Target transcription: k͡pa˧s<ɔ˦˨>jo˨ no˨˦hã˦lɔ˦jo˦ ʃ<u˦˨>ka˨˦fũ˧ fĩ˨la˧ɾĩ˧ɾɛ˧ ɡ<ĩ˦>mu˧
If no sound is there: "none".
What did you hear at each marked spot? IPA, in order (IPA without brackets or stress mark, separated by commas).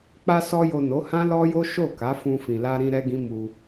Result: ɔ˧, o˦˨, ĩ˦